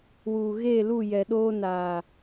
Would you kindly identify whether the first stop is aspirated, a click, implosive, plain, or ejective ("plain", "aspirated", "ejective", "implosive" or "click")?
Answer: implosive